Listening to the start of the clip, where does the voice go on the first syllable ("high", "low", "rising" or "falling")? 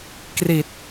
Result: low